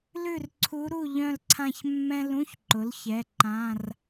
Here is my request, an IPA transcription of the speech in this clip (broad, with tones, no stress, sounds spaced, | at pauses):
l ʉ˥˨ r ǀʰ u˧˥ ɾ u˥˨ ʎ œ̃˥˨ l ǀʰ ã˥˨ ç mː ɛ̃˥ l ũ˧˥˧ ç ǃ ʊ˩˥ l ç ɛ˩˧˩ ǃ ã˧˥˧ r